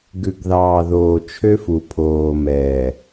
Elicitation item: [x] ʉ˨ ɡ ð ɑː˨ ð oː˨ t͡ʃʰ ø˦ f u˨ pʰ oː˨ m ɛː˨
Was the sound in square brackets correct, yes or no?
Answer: no